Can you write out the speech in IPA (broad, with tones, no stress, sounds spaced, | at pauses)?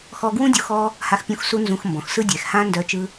x ɔ˧ ɡ w ũ˦ dʲ u˧ x ɔ˦ | h a˧ x pʲ ũ˧ x s u˧ n z ũ˧ x m b ɔ̃˨ x s ɯ˦ dʲ ɛ˨ x h ã˦ n d œ˧ t͡ʃ ɯ˧